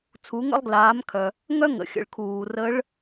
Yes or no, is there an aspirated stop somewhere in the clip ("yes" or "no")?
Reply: yes